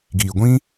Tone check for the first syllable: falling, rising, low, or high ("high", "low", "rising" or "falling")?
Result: low